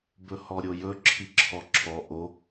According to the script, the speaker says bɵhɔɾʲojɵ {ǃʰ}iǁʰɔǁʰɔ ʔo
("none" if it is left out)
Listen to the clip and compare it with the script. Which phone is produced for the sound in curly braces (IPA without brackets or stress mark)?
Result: ǁʰ